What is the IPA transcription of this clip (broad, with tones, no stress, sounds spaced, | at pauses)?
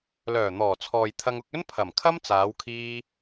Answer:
l œː˨˩ n̪ ɔː˨˩ t͡sʰ ɔː˨ j t̪ʰ ɐ˧ ŋ ʊ˧ k̚ ɵ˥ n pʰ ɐ˨˩ m kʰ ɐ˥ m t͡s aː˨˧ w kʰ iː˧